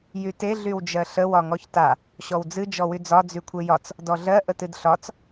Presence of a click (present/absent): absent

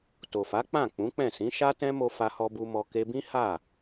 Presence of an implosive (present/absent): absent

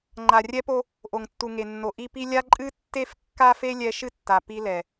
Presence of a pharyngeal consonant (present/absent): absent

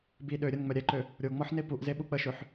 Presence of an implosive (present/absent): present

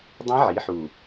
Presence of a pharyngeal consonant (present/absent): present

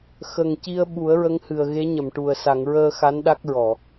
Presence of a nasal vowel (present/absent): absent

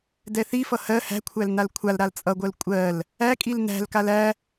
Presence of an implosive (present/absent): absent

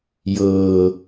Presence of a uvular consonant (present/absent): absent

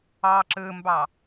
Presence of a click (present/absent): present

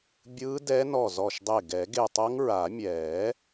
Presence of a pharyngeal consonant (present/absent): absent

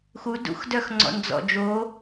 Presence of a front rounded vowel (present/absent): present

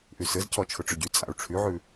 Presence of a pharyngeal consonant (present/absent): present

